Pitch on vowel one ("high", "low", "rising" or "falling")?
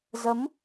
rising